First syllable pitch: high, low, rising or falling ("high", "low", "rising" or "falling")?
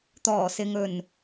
low